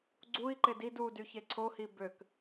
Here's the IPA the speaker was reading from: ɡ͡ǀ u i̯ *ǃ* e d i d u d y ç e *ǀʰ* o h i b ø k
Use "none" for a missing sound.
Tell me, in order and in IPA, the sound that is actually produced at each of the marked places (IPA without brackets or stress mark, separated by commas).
ǃ, ǀʰ